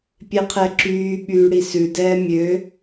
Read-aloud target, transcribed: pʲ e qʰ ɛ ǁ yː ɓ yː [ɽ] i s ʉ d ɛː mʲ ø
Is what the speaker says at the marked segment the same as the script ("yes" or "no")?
yes